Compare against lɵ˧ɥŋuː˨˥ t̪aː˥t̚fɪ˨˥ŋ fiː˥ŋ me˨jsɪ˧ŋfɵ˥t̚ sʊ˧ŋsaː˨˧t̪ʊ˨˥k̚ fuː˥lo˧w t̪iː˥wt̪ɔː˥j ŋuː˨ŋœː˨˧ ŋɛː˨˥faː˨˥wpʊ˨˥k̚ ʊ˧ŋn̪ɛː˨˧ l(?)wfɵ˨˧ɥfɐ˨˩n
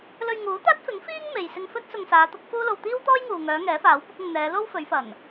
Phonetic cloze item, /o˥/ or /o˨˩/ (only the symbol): o˥